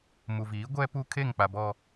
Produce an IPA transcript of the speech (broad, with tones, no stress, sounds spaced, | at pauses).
m u˨ v iː˨˦ ɡʷ ɛ˦ p u˦ kʰ e˦˨ ŋ k͡p a˨ b ɔ˨